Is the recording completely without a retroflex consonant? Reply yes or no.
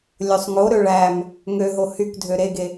no